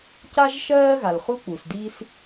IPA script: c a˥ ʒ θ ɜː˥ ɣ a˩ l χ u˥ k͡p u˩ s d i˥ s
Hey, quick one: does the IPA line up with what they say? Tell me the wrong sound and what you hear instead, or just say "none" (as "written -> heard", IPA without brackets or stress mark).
θ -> ʃ